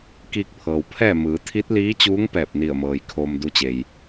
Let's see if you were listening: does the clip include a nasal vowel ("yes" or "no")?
no